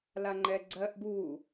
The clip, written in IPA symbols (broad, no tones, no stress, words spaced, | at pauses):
laŋ͡ǃɛɡ͡ǀɜʔ ɡu